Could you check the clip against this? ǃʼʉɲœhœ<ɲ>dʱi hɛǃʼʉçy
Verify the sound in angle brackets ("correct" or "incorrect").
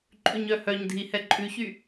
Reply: correct